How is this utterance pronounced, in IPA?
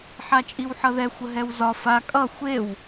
ħ a t͡ʃʼ i w ħ ʌ ð ɛ xʷ ə ɦ ɛ w z ɒ f a kʼ ʌ xʷ e w

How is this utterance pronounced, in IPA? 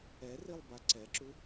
ɛ r i lˠ b a ǀ ɛ ǁ u

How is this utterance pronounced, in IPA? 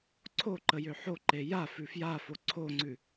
ǀʰ o ǃ ə j ø ħ o ǃ e j a f ʉ f j a f o ǀʰ o ŋ͡ǀ ʉ

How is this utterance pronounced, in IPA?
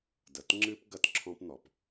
d ɐ˨ t ŋ͡ǁ ɨ˦ p ɡ ɐ˦ t ǁʰ ɔ̃˦ p n̪ ɔ˨ p

